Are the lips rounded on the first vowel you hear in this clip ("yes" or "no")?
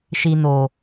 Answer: no